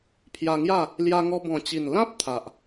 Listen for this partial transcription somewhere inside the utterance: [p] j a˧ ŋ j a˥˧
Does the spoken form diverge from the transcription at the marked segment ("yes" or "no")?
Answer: yes